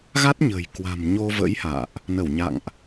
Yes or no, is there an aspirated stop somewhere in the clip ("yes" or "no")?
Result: no